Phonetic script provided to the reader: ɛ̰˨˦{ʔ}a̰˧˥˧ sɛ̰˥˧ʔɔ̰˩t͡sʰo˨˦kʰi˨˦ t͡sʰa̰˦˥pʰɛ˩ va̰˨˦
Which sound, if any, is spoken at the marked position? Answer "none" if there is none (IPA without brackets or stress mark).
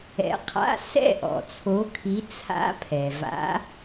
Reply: qʰ